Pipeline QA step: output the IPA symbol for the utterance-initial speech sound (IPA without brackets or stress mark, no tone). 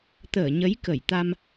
t̪